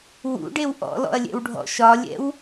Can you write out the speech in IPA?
w ṵ ɖ e w ʔ ɔ̰ l ɔ̰ ɐ̯ lʲ ɛ̰ w ɖʱ ɔ̰ ʃ ɒ lʲ ɛ̰ w

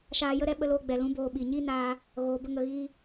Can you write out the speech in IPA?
ʃ aː˧ j ə˦ ɾ ɛ˧ ɓ ə˧ l oː˧ ɡ͡b ɛ˨ l ũ˨˦ b oː˧ ɓ i˨ ɲ i˦ n aː˧ | ɣ oː˨ b ə˧ ŋ ə˨ ɣ iː˧

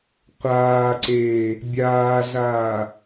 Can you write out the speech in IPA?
qʷ aː ǀ eː | bʲ aː ɮ aː

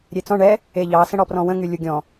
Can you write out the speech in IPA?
ɾʲ e t͡s ɔ̃ ɳ ɛ | e ʎ ɑ s ə̃ ɽ ɔ p r ɔ̃ w ə̃ ŋ y lʲ u ɡʲ ɔ̃

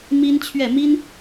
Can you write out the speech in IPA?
m i˥ n t͡ɕʰ ɥ ɛ˥˩ m i˥ n

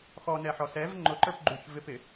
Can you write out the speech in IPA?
x ɔ n ɛ ħ ɔ s ɛ v ŋ͡ǃ ʊ ǃ ə˞ p ɡ͡ǃ u ç v ɪ p ɪ

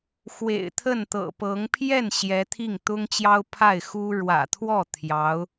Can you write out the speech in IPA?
x w ḛ˨˩ ɪ̯ t̪ʰ ə˥˩ n t̪ ɤ̰˨˩ p ɤ˧˥ ŋ pʰ j ɛ˥˩ n ɕ j ɛ˧˥ t̪ʰ i˥˩ ŋ t̪ ʊ˥ ŋ t͡ɕ j ɑ˥ ʊ̯ pʰ a˥˩ ɪ̯ x u˥ ɻ w ä̰˨˩ t̪ʰ w ɔ˥˩ t̪ʰ j ɑ˧˥ ʊ̯

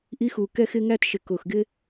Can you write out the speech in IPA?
ʔ i˥ x u˧˩ k ɛ˥ x ɪ˥ ŋ æ˥ t ʃ ɪ˧˩ k ʊ˧˩ x ɡ ɪ˥

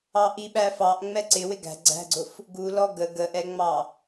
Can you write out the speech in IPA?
ɑ ʔ i ɓ æ f ɑ ʔ ŋ͡m ɛ ǀ ɪ w ɪ ɡ æ̤ ɡ͡ǀ æ̤ ɡ͡ǀ ʊ f | ɡ u l ɔ ɡ ə ɡ ə ʔ ɛ ŋ͡m ɑ

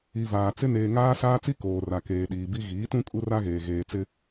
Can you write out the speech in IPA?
i˨ v aː˨ t͡s ɪ˦ n eː˨ ŋ aː˦ s aː˦ t͡s i˦ k oː˨ r a˨ k eː˨ ɗ iː˨ b i˦ ɣ iː˨˦ t ũ˦ kʼ u˦ r a˦ ɣ eː˨ ɣ eː˨ t͡s ɪ˦

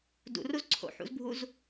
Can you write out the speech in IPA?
d ṵ r u z ǀʰ o̰ ħ ṵ z bʱ u z

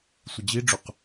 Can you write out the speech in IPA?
sʷ ə d͡ʑ i ɖ͡ʐ u q

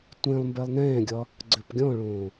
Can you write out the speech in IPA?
tʷ ẽ lˠ m b ɛ lˠ n ɛ̃ː ɡʲ ɒ | ɡ͡ǀ ø p ɡʲ ɔ̃ ɭ õː

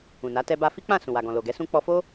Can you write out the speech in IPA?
ũ˨ n a˨˦ t ɛ˧ b a˧ f i˦ k͡p ã˦˨ s ũ˨ w a˨ ɡ ɔ̃˨ l o˨ ɡ ɛ˨˦ s ũ˦ k͡p ɔ˧ f o˦

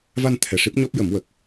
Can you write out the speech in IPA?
v a˧ n t̪ʰ ɛ˨˩ ʂ i˦˥ p̚ ɲ ɔ˦˥ p̚ j ə˨˩˦ m w ə˨˩ k̚

